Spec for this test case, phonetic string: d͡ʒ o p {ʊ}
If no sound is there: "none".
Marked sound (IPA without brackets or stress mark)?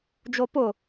ʊ